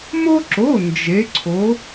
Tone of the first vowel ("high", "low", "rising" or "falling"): high